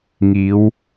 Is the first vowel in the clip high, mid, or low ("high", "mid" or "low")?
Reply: high